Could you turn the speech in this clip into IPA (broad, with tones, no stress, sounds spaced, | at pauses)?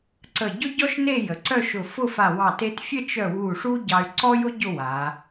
ǀ ə˧˩ ɟ ʊ˥ ɟ ɔ˥ ʃ n e˥˧ j ə˩˧ ǀ œ˥˧ ʃ ʊ˧˩ f ʊ˥˧ f a˧˩ w ɑ˧˩ t e˧ t fʲ ə˥˧ t͡ʃ œ˧˩ w u˧˩ ʂ u˥ ɟ ɑ˧ y̯ ǀ ɔ˥ j ʊ˥ ɟ ʊ˥˧ w a˩˧